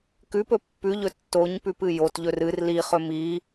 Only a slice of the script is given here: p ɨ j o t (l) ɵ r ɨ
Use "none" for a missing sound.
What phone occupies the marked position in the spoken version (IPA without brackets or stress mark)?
ʎ